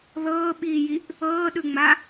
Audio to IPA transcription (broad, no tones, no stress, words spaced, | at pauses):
ðɤːɓiːjiʔ | ɤːɗɯŋ͡ma